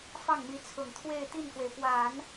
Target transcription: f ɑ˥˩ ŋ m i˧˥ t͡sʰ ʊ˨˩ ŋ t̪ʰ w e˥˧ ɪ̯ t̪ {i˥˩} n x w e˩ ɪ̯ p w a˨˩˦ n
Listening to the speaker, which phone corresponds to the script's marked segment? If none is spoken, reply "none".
i˥˩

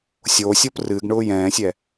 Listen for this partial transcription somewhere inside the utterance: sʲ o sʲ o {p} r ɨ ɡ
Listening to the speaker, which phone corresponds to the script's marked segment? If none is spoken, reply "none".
p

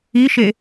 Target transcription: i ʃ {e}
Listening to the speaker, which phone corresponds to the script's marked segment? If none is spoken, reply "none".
e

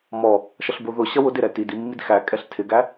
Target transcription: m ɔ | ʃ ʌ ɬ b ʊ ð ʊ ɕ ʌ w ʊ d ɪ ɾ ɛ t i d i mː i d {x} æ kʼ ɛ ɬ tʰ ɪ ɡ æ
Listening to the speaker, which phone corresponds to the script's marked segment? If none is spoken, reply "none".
x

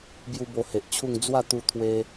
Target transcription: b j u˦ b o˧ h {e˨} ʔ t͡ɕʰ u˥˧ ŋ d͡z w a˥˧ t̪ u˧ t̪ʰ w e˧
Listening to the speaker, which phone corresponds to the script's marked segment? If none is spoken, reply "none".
e˨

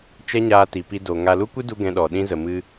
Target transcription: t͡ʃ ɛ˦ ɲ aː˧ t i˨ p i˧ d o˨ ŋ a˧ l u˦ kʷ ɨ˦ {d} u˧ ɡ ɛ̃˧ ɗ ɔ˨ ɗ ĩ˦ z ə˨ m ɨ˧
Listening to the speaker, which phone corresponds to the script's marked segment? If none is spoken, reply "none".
d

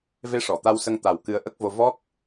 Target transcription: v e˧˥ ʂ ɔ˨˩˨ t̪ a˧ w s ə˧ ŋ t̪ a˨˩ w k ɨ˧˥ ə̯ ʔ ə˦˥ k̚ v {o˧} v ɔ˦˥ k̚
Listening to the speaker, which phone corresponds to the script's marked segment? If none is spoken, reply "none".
o˧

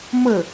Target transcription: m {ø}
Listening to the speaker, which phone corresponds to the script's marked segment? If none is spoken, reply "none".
ə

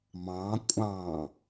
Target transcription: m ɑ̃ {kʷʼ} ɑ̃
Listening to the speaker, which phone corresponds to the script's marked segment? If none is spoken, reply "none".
kʷʼ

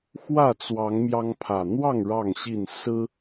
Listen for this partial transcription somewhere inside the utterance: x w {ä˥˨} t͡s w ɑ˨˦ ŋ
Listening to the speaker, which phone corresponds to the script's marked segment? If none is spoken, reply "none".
ä˥˨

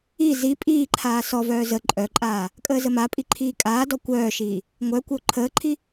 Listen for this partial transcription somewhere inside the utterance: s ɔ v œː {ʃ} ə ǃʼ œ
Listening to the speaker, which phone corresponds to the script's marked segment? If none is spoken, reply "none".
z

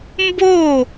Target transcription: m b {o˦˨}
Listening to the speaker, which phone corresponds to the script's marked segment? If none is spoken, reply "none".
o˦˨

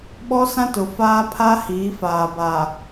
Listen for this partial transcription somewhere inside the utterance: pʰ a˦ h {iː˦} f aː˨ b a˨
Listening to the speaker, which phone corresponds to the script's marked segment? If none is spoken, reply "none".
iː˨˦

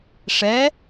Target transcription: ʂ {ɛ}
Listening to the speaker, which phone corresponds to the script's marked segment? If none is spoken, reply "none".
ɛ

